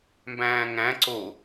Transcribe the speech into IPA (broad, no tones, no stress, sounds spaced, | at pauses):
m b æ̃ː ŋ æ̃ ǀ o